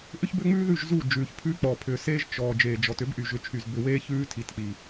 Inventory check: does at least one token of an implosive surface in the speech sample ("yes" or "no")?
no